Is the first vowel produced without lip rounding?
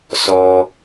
no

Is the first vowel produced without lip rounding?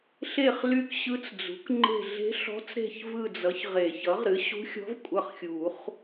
yes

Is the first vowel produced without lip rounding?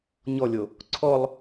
no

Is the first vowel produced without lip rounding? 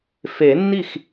yes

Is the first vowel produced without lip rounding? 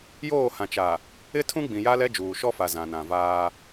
no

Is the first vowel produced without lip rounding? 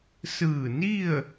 yes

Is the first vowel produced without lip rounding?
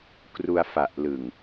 no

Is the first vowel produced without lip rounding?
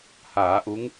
yes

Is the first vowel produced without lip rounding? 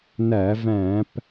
yes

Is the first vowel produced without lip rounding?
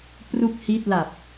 no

